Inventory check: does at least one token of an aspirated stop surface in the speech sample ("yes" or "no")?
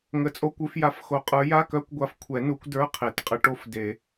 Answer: yes